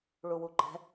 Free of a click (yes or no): no